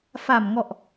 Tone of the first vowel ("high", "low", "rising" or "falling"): low